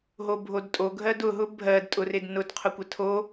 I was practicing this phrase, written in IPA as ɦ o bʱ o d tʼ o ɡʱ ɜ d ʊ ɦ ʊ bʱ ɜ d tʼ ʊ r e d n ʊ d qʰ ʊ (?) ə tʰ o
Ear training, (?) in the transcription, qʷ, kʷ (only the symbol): kʷ